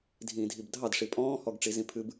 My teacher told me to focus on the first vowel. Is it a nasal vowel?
yes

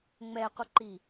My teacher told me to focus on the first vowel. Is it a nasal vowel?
no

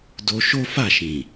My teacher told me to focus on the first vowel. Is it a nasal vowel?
no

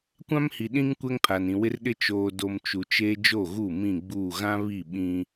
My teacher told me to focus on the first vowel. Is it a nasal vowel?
yes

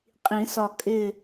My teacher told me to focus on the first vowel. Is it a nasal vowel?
yes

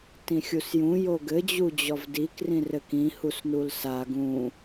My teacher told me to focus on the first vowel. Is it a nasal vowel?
yes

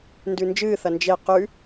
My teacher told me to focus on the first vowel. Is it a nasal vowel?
no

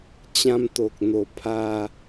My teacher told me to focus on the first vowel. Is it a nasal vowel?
yes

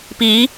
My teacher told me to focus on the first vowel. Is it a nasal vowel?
no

